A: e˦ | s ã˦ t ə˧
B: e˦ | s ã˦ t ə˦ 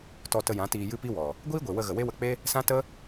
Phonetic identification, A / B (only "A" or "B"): B